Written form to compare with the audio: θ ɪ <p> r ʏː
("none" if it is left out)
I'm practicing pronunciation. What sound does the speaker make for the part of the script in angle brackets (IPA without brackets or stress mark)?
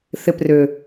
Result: p